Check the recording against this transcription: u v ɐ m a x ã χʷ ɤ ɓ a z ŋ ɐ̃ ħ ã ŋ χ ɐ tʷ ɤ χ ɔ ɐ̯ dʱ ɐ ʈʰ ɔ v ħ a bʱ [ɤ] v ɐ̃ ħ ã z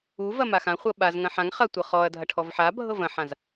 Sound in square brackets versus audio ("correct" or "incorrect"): correct